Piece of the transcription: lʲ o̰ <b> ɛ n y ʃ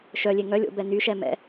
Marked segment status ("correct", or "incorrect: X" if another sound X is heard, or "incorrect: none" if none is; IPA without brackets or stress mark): correct